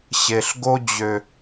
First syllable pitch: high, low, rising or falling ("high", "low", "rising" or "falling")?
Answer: low